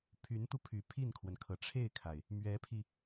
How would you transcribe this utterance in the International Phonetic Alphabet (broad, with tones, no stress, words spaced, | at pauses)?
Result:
pʰy˧˥nt̪u˧pʰy˨˩ pʰi˥˩nkʰwə˩nkʰɤ˩ ʈ͡ʂʰe˥˩ɪ̯kʰa˩ɪ̯ | mɥɛ˧˥pʰi˧